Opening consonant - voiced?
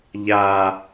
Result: yes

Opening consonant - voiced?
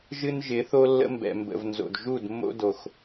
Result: yes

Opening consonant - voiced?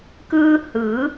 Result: no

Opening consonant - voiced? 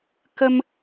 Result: no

